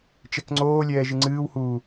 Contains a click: yes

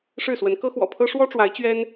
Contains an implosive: no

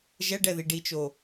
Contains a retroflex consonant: yes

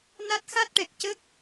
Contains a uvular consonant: no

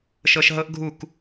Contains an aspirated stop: no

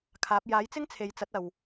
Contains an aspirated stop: yes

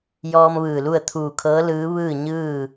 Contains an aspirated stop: yes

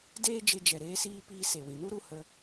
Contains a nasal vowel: yes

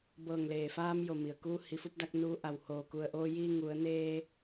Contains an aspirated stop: no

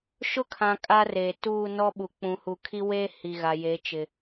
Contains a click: no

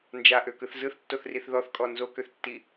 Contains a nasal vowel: no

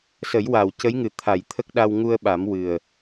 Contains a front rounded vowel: no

